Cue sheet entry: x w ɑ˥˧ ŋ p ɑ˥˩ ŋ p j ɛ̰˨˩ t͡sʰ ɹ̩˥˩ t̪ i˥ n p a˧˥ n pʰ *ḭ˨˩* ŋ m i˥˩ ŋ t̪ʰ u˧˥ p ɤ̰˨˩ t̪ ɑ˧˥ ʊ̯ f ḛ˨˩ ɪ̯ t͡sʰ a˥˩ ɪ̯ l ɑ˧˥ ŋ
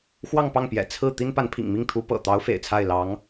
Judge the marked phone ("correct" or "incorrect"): correct